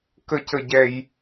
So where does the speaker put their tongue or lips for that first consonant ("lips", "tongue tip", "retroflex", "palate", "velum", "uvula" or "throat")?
velum